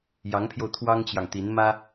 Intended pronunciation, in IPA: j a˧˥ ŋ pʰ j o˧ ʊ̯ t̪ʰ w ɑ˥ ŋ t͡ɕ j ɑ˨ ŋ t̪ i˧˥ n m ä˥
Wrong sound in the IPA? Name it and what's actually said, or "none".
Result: a˧˥ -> ɑ˧˥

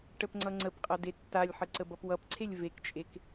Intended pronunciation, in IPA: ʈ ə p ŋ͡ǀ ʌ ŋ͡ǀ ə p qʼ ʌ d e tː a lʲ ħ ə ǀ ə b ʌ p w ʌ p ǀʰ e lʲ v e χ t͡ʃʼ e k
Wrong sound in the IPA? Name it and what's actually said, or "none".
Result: χ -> k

